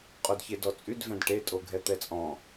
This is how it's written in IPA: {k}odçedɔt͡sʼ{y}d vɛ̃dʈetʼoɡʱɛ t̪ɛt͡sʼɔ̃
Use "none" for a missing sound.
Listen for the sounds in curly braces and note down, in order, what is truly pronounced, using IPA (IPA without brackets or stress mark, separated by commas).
qʼ, y